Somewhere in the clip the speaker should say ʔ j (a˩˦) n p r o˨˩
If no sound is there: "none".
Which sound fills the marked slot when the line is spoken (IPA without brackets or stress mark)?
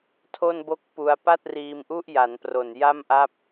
a˩˦